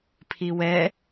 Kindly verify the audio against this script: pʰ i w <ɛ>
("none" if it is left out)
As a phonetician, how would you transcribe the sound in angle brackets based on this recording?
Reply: ɛ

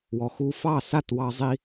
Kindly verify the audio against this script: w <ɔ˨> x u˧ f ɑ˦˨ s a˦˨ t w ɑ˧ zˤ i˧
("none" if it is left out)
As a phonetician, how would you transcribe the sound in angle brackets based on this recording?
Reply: ɔ˨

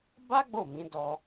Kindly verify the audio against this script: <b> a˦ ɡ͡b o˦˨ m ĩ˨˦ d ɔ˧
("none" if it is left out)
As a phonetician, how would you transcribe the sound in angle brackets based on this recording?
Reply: b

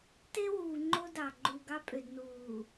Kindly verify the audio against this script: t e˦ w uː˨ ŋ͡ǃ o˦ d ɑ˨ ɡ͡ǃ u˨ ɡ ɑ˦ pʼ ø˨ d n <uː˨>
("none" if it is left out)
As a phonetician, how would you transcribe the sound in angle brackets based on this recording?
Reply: uː˨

